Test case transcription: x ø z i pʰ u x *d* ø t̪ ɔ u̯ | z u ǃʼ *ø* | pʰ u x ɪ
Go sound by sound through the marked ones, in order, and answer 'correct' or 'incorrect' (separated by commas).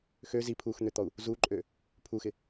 incorrect, correct